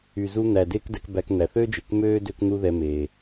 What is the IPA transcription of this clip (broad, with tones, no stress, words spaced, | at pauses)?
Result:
y˩ zu˧n̪æ˩ deː˥kdɛ˧kbæ˧k n̪æ˩θø˥d͡ʒe˩k møː˥ dø˥kn̪u˥ðɛ˧ meː˩